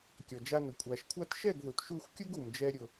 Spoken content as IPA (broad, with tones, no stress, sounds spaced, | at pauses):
kʲ ɔ˨ d͡ʒ a˧ n ʊ˨ kʷʼ a˨ ʃ kʷʰ a˦ t ʃ ɛ˦˨ ɡ ð u˨ t ʃ u˦˨ xʷ kʲ u˦ ɡ u˨ m d͡ʒ ɛ˦ ɾʲ ʊ˧